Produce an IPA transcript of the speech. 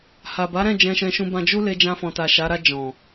h a˨ b a˨˦ ɾ ɛ̃˦˨ d͡ʒ ɛ̃˧ ʃ ɛ̃˧ ʃ ũ˧ b ã˧ d͡ʒ u˦ l e˧ d͡ʒ ã˧ f ɔ̃˨ t a˨ ʃ a˨˦ ɾ a˧ d͡ʒ ɔ̃˨

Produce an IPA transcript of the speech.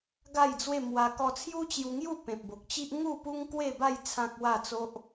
ɡ a˥˧ j d͡z w e˥˧ m w a˧ k ɔ˧ t͡sʰ j u˦ t͡ɕ j u˧ ŋ j u˥˧ p ẽ˨ p̚ b o˨ k̚ t͡ɕ i˦ ʔ ŋ u˥˧ p u˦ ŋ k w e˥˧ b a˥˧ j t͡sʰ ã˦ k̚ w a˥˧ t͡s o˦ ʔ

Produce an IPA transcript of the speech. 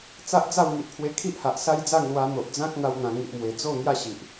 t͡s a˦ ʔ d͡z a˥˧ w ŋ i˨ ʔ pʰ w e˧ kʰ i˦ ʔ h a˨ ʔ s a˦ j d͡z a˥˧ ŋ l w a˧ n̪ o˨ ʔ d͡z ã˦ k̚ n̪ a˦ w n̪ ã˧ ŋ i˨ ʔ m w e˨˩ d͡z o˥˧ ŋ j a˥˧ ɕ i˨ ʔ

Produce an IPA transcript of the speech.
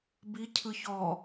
b i cʰ ɯ ç ɔ

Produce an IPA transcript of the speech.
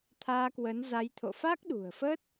t̪ʰ aː˧ k w ə˨˦ n z a˨˦ j t̪ʰ o̰˧˨ f a˦˥ k̚ ɗ ṳ˨˩ ə̯ f ə˦˥ t̚

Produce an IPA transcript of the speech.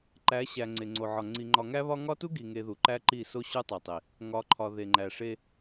ǃ æ˨˦ ɕ æ˨ ŋ͡ǀ e˨ ŋ͡ǀ o˨ ʕ ɒ˨ ŋ͡ǀ i˨ ŋ͡ǃ ɒ˨ ŋ æ˦ β ɒ˦ ŋ ɒ˦ t u˦ ɡ i˨ ŋ e˨ ð u˨ ǃ æ˦ ǃ i˦˨ s o˦ ɕ u˦ tˤ e˨ tˤ i˨ | ŋ ɒ˨˦ ǃʰ ɒ˨ ð e˨ ŋ͡ǃ æ˨ ʂ e˦

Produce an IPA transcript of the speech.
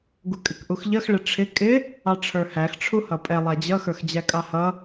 ɡ u kʼ ɪ k ʔ u x ʎ ʌ x ɭ ɪ ʈ͡ʂʰ ɪ kʼ ɪ | ɑ ʈ͡ʂʰ ə˞ h æ x ʈ͡ʂʰ u h ʌ pʼ ɛ lˠ æ d͡ʑ ʌ x ə˞ x d͡ʑ æ kʼ ɑ h ʌ

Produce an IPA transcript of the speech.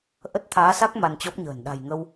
ʔ ə˦˥ t̚ t̪ʰ aː˨˦ s a˦˥ k̚ m a˧ n t͡ɕ ɔ˦˥ p̚ ɲ ə̤ː˨˩ n ɗ a̤˨˩ j ŋ ə˧ w

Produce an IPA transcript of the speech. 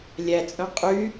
lʲ æ t͡sʼ œ̃ qʼ y

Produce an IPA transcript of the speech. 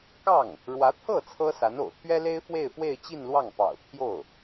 k ɑ˥˩ ŋ | ɻ w ä˧˥ t̪ʰ ɤ˥˩ t͡sʰ ɤ˥ s a˧˥ n o̰˨˩ ʊ̯ t̪ʰ ɥ ɛ˥ l e˥ ɪ̯ f w e˥˧ ɪ̯ f w e˥˧ ɪ̯ t͡ɕ i˥˧ n l w ɑ˥˩ ŋ p ɑ̰˨˩ ʊ̯ t̪ʰ j o˥˩ ʊ̯

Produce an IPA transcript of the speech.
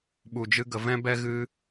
ɓ u˧ d͡ʒ ɨ˦ ɡ ə˧ v ɛ̃˦ b ɛ˦ ɣ ɨ˦

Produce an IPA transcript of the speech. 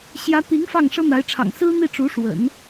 ɕ j ä˧˥ t̪ i˧˥ ŋ f ɑ˥˩ ŋ ʂ ɤ˥ n̪ a˧˥ ɪ̯ ʈ͡ʂʰ ɑ̰˨˩ ŋ s ɹ̩˥ n̪ i˥˩ ʈ͡ʂ u˧˥ ʂ w ə̰˨˩˦ n

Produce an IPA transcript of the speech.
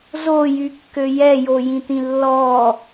z o j y kː ø j ɛ j o j ĩ t̪ ĩ lː ɔ

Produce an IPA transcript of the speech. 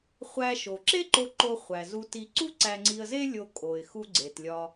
χʷ æ˧ ʃ o˩ ǁ e˥ ǃ o˧ ǃ o˧ χʷ æ˩ z u˧ t i˧ ǀ u˥ ǀ æ˧ ŋ͡ǀ i˧ ə̯ z e˥ lʲ o˧ kʼ o˩ ɪ̯ x u˧ ɡ͡ǀ e˩ t lʲ ɒ˧

